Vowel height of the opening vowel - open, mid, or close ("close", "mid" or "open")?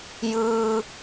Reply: close